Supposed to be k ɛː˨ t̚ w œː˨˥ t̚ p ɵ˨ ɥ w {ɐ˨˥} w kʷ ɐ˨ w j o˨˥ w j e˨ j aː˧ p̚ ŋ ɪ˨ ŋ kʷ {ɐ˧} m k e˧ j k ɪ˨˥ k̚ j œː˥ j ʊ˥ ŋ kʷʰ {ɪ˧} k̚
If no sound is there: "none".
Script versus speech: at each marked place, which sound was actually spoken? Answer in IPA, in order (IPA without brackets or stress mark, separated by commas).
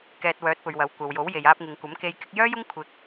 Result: ɐ˨˥, ɐ˨˥, ɪ˧